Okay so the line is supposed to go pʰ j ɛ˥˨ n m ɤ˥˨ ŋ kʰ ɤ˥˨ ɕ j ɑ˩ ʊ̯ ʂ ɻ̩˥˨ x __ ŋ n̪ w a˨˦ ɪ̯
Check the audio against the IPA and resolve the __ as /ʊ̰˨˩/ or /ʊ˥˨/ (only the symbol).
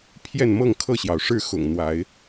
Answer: ʊ̰˨˩